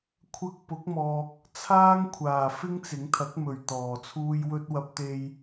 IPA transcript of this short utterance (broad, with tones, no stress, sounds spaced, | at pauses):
kʷʰ ɐ˧ k̚ p ʊ˨˥ k̚ m ɔː˨ k̚ | t͡sʰ aː˥ ŋ kʷʰ aː˨˩ f ɪ˥ ŋ t͡s ɪ˨˥ ŋ t̪ʰ ɐ˨˥ k̚ m ɵ˨˩ ɥ t̪ ɔː˨˩ t͡sʰ uː˥ j w ɵ˥ t̚ w ɐ˧ p̚ t̪ e˧ j